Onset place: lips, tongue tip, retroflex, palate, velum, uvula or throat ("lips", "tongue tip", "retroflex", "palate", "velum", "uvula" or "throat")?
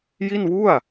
palate